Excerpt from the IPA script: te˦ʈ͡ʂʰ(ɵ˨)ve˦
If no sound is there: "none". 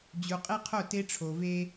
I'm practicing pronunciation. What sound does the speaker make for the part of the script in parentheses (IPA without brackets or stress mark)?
o˨